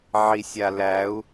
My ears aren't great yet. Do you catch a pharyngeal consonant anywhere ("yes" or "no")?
yes